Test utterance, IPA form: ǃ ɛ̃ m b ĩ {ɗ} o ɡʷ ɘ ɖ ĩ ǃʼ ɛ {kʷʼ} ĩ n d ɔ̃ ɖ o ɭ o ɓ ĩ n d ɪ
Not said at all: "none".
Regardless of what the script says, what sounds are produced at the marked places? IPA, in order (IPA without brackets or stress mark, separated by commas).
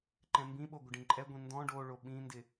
ɓ, ɡʷ